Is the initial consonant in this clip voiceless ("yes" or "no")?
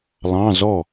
no